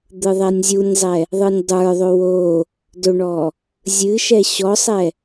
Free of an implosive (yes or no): yes